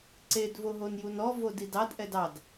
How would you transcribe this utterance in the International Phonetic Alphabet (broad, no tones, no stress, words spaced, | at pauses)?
ǀed voɦonjunɔ vodidɑd ʔɛdɑd